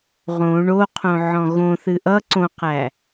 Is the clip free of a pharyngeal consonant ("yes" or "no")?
no